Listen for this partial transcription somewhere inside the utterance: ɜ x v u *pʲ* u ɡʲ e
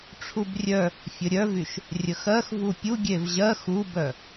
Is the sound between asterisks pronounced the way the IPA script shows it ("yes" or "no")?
yes